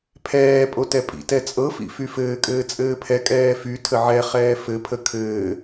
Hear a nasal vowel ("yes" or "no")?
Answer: no